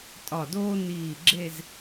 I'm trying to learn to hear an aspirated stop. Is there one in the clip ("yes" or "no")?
no